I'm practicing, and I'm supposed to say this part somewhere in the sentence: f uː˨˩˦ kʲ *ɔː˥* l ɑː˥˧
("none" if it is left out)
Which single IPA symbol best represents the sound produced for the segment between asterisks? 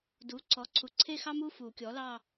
ɔː˩˥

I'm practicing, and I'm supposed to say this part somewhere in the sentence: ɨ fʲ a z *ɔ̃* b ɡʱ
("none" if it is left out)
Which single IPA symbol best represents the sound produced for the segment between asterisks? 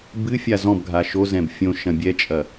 ɔ̃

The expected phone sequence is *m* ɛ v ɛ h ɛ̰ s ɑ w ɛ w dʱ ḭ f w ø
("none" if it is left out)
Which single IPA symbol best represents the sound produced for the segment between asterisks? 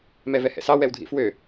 m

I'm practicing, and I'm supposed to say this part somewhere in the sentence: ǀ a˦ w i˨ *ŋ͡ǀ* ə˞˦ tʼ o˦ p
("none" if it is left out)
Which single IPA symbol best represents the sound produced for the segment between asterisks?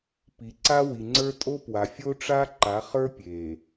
ŋ͡ǀ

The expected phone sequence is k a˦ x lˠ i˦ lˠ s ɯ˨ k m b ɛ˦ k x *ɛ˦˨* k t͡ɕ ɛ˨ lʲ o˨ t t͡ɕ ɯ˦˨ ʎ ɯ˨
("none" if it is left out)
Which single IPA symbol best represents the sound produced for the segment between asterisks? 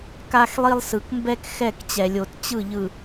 ɛ˦˨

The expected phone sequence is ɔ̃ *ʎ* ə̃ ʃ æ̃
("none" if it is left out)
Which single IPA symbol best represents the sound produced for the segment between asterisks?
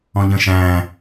ʎ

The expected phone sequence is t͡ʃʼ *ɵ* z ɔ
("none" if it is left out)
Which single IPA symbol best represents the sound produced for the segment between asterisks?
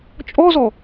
ɔ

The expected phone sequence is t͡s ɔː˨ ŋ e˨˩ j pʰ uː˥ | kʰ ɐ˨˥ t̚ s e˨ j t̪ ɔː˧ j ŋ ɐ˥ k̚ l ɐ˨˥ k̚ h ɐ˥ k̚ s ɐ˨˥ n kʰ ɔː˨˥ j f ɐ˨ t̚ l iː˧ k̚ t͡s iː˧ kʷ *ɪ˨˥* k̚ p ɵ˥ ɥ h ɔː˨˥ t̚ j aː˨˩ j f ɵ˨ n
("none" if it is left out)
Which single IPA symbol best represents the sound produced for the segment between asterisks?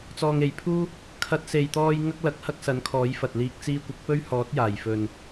ɪ˨˥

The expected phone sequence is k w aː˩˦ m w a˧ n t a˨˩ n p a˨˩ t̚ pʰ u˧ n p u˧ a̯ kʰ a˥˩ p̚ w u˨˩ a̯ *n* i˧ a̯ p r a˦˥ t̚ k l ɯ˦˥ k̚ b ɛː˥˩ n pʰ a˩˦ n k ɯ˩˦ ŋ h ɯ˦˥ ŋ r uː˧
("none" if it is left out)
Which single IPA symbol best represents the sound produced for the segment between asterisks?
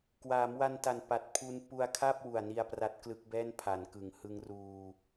n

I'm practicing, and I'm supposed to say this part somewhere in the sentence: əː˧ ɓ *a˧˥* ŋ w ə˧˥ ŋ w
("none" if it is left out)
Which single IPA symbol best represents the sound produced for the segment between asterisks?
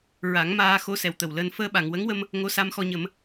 a˨˩˨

